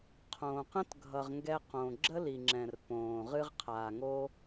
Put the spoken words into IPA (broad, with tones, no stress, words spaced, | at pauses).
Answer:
qʰõː˨qə̃˦tɡʱʌ˨ʁŋɡɛ˧ qõ˨ɡ͡ǁə˦li˨ŋ͡ǁɛ̃˨r põː˨ʁɨ˦ʁ qʰaː˨ŋo˦